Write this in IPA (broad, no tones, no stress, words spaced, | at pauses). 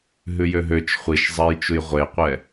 ɦʉjøɦøt͡ʃ χʷiʃzˤɛjt͡ʃuj ʁʷeqʷɛ